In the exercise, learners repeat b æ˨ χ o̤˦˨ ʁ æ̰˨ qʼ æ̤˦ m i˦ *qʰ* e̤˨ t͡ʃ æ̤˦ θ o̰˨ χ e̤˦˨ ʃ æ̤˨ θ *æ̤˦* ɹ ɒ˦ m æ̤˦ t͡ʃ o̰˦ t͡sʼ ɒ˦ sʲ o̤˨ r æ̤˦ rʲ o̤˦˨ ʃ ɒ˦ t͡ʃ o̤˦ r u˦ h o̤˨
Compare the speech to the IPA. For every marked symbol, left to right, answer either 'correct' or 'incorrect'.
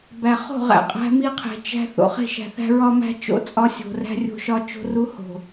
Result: correct, correct

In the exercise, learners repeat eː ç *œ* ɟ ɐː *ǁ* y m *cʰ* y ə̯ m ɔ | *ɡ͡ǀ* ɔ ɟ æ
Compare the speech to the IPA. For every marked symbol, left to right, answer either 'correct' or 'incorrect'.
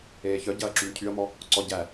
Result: correct, correct, correct, incorrect: ǀ

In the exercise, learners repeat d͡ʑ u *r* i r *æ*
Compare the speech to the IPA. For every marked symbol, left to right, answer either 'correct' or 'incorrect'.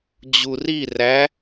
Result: correct, correct

